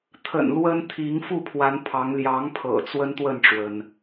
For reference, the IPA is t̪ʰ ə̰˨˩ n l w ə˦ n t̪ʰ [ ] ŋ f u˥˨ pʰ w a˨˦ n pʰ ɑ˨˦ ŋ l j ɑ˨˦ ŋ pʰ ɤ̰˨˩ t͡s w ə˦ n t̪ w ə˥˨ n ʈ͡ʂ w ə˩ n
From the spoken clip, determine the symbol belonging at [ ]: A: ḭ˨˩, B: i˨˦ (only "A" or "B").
B